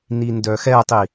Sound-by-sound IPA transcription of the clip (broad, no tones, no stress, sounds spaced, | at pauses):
n i n d œ x ɛ tˤ i